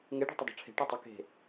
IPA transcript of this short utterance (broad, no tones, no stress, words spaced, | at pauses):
ŋeɖṳ tˤədˤo̤ʈ͡ʂʰe̤ ʈɔtˤɪ ke̤